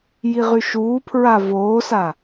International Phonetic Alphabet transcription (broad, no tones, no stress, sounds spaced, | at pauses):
j i ʁ y ʃ uː pʰ ɹ a v oː s a